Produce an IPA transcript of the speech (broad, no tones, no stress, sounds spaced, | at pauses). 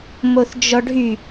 m o θ d͡ʒ ɔ ɖʱ y